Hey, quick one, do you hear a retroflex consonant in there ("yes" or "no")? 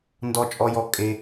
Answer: no